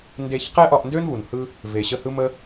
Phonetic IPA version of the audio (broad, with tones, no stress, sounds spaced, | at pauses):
n d e˧ ç q ɛ˦ ʔ ɒ˧ ʔ n d ø˦ n v u˨ n h ɯ˦ | v e˨ ɕ ə˧ h ɯ˦ m ə˦